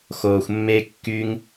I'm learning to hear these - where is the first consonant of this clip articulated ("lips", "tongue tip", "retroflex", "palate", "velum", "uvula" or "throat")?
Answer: velum